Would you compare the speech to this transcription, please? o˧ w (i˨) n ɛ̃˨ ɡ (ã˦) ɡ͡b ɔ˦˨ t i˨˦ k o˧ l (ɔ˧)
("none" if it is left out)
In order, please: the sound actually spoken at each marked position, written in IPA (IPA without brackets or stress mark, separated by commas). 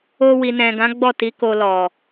i˨, ã˨˦, ɔ˨